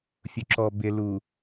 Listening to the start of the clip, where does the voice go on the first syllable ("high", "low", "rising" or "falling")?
low